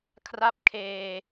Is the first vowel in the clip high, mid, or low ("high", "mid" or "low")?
low